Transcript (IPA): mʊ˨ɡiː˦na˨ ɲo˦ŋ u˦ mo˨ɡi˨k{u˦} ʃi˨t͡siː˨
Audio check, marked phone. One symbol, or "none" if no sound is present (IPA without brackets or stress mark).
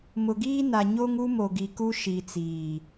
u˦